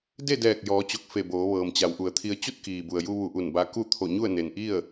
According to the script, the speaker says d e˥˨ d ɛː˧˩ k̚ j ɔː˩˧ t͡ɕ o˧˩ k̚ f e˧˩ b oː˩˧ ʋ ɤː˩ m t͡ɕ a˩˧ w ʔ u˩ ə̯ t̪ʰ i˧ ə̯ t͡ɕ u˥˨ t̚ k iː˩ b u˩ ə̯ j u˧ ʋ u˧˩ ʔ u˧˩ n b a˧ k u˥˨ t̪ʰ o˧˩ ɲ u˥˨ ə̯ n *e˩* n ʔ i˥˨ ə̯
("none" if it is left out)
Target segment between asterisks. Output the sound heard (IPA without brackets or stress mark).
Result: e˩